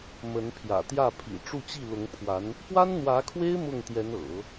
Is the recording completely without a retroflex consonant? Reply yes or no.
no